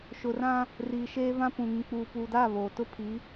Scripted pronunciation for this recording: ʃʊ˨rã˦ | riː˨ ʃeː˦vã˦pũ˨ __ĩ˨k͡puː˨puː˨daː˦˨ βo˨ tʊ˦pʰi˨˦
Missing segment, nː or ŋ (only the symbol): ŋ